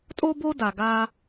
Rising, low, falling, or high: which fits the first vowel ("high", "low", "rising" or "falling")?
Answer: high